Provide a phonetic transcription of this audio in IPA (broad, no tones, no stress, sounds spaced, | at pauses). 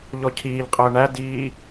ʎ ɔ cʰ iː ʎ qʼ əː ɳ æ d iː